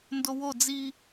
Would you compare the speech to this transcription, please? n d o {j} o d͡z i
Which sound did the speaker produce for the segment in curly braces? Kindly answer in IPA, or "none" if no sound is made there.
w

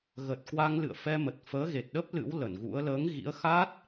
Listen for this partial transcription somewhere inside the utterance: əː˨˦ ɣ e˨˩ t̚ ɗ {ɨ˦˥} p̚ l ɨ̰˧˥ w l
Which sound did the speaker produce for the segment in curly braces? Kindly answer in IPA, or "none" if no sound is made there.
ə˦˥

